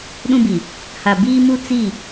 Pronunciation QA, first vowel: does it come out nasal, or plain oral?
nasal